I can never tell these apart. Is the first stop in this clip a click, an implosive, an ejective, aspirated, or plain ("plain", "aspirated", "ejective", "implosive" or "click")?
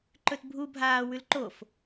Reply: click